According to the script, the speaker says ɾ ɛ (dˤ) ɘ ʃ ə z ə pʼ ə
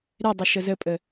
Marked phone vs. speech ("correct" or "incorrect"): correct